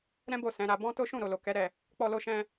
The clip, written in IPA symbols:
ɾɛ̃˦bo˦˨ sɛ̃˨˦ɾa˧ bɔ̃˦ to˦ ʃũ˦˨ɾo˨ lo˨kɛ˨˦ ɾɛ˦˨ | k͡pɔ˧lo˧ʃɛ̃˧

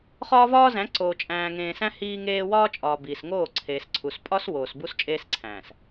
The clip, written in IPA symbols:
χɒː˦vɒː˦zæ̃˨˦ǀoː˨ t͡ʃʼæ̃ː˨ŋẽː˨sæ̃˦ hiː˦ŋeː˦ wɒː˦t͡ʃʼɒː˨ biː˨sŋoː˦˨ǀʰeː˨sǀʰu˨s pʼɒ˦s woː˨sbu˦s t͡ʃʼeː˦sǀʰæ̃ː˨s

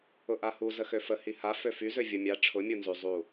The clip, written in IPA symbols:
ʊʔahu zəxøfə hiha føfy zøvʲʊ mʲa ʈ͡ʂʰʊ mʲunzy zˤu

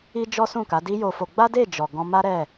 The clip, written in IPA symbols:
i˦d͡ʒɔ˦sũ˦˨ka˨˦ di˦jo˧fo˧ ɡ͡ba˦de˦˨d͡ʒɔ˨ ɡɔ̃˧ma˦ɾɛ˦˨

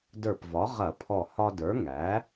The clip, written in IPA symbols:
də˞˧˩pvɒ˩˥ ʁɐ˧˩˧pʰɔ˧˩ hɒ˧də˞˩˥ŋæ˩˥

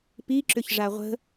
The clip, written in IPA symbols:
piǁʏç ʐaʁʷə̤

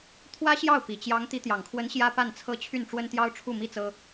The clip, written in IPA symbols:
t̪ʰwä˥ɕjɑ˥˩ʊ̯ pi˨˩t͡ɕjɑ˧˥ŋ t̪i˧˥t̪jɑ˨˩ŋkʰwə˧˥n ɕjä˥pa˥˩nt͡sʰɤ˥ t͡ɕʰy˥˩nʈ͡ʂwə˥n t̪jɑ˥ʊ̯ʈ͡ʂʰu˥˩mi˥t͡sɤ˥

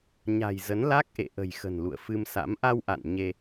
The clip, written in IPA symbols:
ɲa̤˨˩j zə˨˦nla˦˥k̚ʔḛ˧˨ ʔə̤˨˩jxə̤˨˩n lṵ˧˨ə̯fɨ˧msa̰˧˥m ʔa˧wʔa̰˧˨n ɲe˧

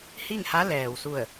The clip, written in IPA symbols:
hi˥˨ŋha˧˥lɛː˩wsu˧˩ə̯

